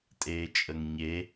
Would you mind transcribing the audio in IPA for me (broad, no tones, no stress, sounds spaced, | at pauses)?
tʼ eː t͡ʃʼ ə ŋ ɲ e